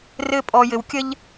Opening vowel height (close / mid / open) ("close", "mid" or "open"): mid